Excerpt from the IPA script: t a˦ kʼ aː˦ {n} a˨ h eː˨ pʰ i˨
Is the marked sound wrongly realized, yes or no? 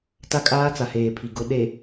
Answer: yes